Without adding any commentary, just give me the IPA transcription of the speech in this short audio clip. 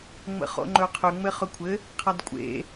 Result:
ŋ͡m ə̰ χ o̰ ŋ͡ǃ ɵ qʰ ø ŋ͡m ɘ χ ɵ kʷʰ ɘ | qʰ a d kʷʼ ḛ

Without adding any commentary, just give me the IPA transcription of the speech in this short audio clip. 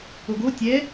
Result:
o ɡ o tʲ ɛ

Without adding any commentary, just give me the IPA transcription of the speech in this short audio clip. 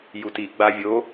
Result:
j u t i ɡ͡b a vʲ o

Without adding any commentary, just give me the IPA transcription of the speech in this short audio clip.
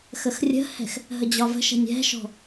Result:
x ə x rʲ ə̤ h ɛ̤ x | ɦ ə d͡ʑ ɒ v ə̤ ʃ ɛ̤ nʲ ɛ̤ ʃ ɔ̤

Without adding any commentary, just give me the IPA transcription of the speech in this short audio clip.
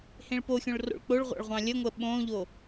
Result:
h ẽ ɭ p o xʲ õ ɭ r o̰ ɭ k͡p o ɭ ʁʷ ɑ̰ ɭ ʁʷ ɑ̃ lʲ ə ŋʷ ə ɓ õ ʎ o

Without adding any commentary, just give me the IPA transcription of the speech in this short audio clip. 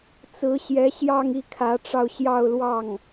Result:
t͡s ɹ̩˧˥ ɕ j ɛ˧˥ ɕ j ɑ˥˧ ŋ i˥˩ kʰ ä˧˥ ʈ͡ʂ ɑ˧ ʊ̯ ɕ j ɑ˥˧ ʊ̯ l w ɑ˥˩ ŋ

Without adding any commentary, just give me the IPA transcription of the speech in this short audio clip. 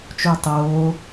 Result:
t͡ʃ u ɐ̯ tˤ oː

